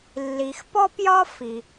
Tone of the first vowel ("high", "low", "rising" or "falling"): low